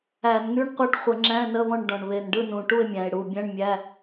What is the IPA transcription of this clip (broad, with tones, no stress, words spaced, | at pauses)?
æ˧˩˧nŋy˧˥˧ɳ qʷa˦˨ʈχʷə˧˩˧ ŋ͡ǁæ̃˧˥˧nə˧˥˧βɔ̃˦˨ɳ ɖɔ̃˨˩ɳ βe˨˩nɖɯ˦˨nũ˨˩ ʈu˦˨e̯mʲæ̃˨˩e̯ɽu˨˩bʲæ̃˧˥˧ɳ mʲæ˧˥˧